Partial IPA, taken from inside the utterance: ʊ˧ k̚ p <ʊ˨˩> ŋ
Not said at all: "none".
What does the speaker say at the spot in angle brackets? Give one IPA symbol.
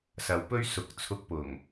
ʊ˨˩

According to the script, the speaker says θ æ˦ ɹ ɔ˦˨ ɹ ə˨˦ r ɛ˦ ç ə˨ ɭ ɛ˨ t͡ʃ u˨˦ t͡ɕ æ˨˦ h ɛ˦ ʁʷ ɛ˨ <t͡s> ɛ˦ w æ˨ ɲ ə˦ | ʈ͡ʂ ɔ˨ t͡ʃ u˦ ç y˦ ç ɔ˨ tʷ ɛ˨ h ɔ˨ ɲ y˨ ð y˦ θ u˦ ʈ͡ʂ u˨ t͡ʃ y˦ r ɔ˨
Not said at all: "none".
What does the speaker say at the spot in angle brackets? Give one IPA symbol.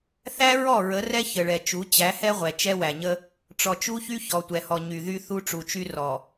t͡ʃ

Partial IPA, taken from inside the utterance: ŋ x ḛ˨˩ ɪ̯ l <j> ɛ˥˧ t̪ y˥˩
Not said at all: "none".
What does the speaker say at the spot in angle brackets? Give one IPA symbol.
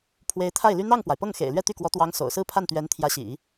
ɥ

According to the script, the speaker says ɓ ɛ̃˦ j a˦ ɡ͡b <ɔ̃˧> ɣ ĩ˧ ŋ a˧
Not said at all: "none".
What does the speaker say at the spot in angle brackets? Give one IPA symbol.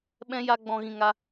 ɔ̃˧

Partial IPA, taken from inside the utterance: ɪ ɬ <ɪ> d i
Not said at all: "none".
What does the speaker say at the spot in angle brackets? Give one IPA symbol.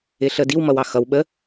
ə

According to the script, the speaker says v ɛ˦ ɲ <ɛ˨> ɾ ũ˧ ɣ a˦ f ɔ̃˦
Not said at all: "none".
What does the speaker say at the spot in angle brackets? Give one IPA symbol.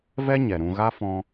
ɛ˨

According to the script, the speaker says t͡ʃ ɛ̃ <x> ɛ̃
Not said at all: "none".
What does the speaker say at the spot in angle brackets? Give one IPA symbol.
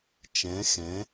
x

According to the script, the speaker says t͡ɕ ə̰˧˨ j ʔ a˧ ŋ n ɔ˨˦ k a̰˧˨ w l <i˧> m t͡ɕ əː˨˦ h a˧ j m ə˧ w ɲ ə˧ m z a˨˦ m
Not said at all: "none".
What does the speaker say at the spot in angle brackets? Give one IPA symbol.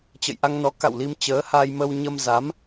i˧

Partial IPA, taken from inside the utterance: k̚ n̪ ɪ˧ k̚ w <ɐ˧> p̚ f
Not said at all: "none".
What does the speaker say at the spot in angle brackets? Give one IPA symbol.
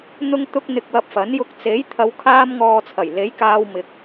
ɐ˧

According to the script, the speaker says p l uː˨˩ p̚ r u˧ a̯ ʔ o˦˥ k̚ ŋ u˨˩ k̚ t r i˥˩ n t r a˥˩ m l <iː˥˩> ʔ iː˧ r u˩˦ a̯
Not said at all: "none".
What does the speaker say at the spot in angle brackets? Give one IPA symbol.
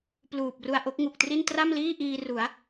iː˥˩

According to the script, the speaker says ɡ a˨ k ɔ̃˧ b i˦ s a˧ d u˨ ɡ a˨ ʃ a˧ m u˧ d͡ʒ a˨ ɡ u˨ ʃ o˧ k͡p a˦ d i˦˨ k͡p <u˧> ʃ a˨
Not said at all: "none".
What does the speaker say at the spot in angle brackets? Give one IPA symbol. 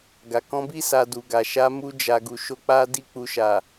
u˧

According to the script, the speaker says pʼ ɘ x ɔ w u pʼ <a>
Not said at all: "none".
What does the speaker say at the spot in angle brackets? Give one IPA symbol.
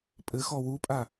a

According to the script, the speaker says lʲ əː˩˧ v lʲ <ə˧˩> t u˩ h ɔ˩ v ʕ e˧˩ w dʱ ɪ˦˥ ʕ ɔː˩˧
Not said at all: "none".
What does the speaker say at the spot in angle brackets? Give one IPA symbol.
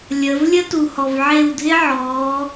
ə˦˥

